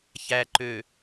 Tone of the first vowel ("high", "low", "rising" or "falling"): low